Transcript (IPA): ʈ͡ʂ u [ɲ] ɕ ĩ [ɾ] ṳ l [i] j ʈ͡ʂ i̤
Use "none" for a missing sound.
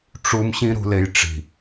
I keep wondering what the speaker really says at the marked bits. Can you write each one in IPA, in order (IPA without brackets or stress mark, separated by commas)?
m, ɾ, e